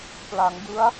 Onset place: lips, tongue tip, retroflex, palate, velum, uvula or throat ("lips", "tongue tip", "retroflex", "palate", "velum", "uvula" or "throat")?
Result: lips